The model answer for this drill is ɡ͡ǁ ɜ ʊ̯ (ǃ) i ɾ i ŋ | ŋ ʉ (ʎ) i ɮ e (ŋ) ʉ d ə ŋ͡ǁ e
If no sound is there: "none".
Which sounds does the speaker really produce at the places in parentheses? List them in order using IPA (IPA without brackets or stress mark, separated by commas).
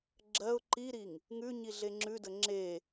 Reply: ǃ, ɲ, ŋ͡ǁ